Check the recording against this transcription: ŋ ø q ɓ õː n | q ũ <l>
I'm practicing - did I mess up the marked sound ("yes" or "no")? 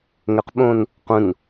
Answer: yes